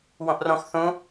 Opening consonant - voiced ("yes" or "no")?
yes